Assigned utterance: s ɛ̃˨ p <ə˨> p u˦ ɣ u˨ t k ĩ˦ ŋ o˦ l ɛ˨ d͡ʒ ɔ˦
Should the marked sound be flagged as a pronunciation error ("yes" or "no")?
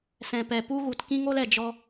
yes